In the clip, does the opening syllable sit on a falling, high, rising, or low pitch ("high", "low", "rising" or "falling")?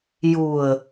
low